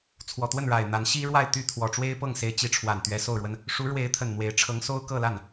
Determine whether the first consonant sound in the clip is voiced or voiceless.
voiceless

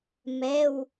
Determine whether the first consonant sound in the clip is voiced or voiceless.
voiced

